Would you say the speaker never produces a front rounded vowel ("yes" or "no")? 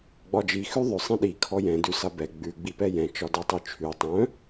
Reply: no